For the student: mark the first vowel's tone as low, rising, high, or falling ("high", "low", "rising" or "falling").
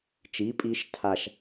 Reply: rising